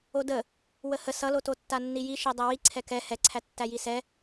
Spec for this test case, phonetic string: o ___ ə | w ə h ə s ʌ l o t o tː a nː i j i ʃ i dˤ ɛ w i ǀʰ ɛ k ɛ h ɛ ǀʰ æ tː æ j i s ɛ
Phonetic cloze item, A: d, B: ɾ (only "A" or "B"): A